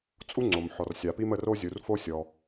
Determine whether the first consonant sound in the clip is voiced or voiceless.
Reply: voiceless